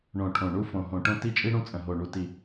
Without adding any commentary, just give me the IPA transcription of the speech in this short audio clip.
ɳ õ˨˩ ʈʰ õ˨˩ ɳ u˦ f õ˨˩ ɦ õ˨˩ ʈ õ˦ t i˦ t͡ʃʼ i˦ ɽ ũ˦ t͡sʼ ə̃˨˩ ɦ o˨˩ ɳ u˨˩ t i˨˩

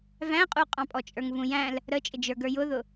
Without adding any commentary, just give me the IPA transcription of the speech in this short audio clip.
v æ̃ qʼ u qʼ ɑ̃ pʼ ɔ t͡ʃʼ ə˞ ŋ v ũ j æ̃ l | ɾ ə t͡ʃʼ ɪ d͡ʒ ə˞ ɡ ə˞ j ʊ ð ʊ

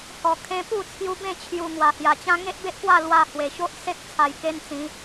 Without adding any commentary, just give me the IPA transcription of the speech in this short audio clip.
h ɔ˨˩ kʰ ẽ˧ p u˥˧ t͡sʰ j u˧ b ẽ˥˧ t͡ɕʰ j u˨˩ ŋ w a˨˩ h j a˨˩ t͡ɕ ã˦ ŋ e˦ ʔ b e˦ ʔ k w a˥˧ l w a˧ h w e˨˩ ɕ o˦ ʔ s e˦ k̚ t͡sʰ a˧ j k e˦ n t͡s ĩ˨˦

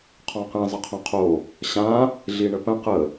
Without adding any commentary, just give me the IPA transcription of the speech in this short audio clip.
qʰ ɔ̃ q ĩ zˤ ʌ qʰ õ qʰ o | ɕ ã | ɮ i ɳ ə p ə̃ q ə

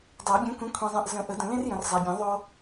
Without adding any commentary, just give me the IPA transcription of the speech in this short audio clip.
dˤ æ˨˩˦ bʲ ɛ̃˨˥ kʷ ẽ˨˥ kʷʰ ẽ˨ zˤ ɛ̃˨ ʔ z ə̃˨˩˦ ʔ ə˨˩˦ d ə̃˨ l ẽ˥ r j ə̃˨ r zˤ æ˨ bʲ ẽ˨˩˦ ðˤ o˥

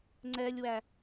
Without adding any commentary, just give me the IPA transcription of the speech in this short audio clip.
ŋ͡ǀ ɛ lʲ w æ

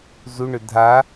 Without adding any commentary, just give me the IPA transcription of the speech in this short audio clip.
z u ɳ ʏ dʱ a

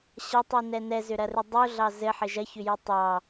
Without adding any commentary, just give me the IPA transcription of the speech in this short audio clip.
ɕ ɐ tˤ u n ɛ n ɛ z ʏ ɾ ɐ r ʏ dˤ u ɮ ɑ z ɘ ħ ɘ ʒ ɐ ç ʏ j ɘ tˤ ɑ

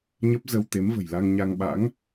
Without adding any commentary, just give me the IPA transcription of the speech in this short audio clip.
ɲ ə˦˥ p̚ z ə˧ w t̪ e˨˦ m v ə̤˨˩ j l a˧ ŋ ɲ a˧ ŋ ɓ a̰˧˥ ŋ

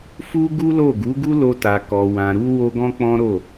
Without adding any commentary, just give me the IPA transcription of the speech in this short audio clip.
f u˦ ɡ u˦ l o˦˨ ɡ u˨˦ ɡ u˦ l o˧ t a˨ k ɔ˨ w ã˨ ɾ u˧ w o˦ ɡ ɔ̃˦ k͡p ɔ̃˦ ɾ o˦˨

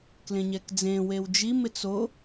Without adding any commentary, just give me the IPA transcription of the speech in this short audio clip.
k l ẽ ɲ ɛ k d͡z ẽ w e w d͡ʒ i m ɪ t͡s o

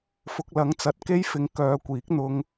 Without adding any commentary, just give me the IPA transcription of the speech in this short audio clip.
f ʊ˨ k̚ l ɐ˨˥ ŋ t͡s ɐ˨ t̚ k e˥ j f ɪ˨˧ ŋ k œː˨˧ kʷ iː˨˥ k̚ n̪ ʊ˧ ŋ

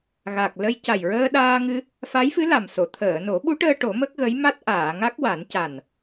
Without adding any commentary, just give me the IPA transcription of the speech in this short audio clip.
ɣ a˨˩ k̚ l ə˧ j c a˨˩ j ɹ əː˧ ɗ aː˧ ŋ ɨ˧ | f a˧˥ j f ɨ˧˥ l a˨˩ m s o˨˩˨ t̪ʰ əː˨˩˨ n o˨˩˦ ɓ u˧˥ ʈ əː˧ ʈ o˨˩˦ m ə˦˥ k̚ ɣ ə˧˥ j m a˦˥ t̚ ʔ aː˨˩˨ ŋ a˦˥ k̚ w a˨˩˦ n c a˨˩ n

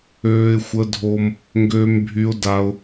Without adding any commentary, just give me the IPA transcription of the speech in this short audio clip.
øː˩ ɪ̯ xʷ ə˩ dʱ o˩ m | ŋ ɡ øː˩ m bʱ y˩ ʊ̯ d a˩ ʊ̯

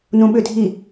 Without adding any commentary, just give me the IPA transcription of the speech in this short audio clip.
n ũ ɓ ʏ dʱ i

